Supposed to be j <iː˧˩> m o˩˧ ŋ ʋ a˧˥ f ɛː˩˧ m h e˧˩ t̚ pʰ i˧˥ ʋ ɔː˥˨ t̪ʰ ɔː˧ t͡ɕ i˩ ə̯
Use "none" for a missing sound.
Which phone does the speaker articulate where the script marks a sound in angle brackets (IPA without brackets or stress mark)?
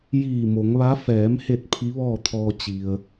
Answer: iː˧˩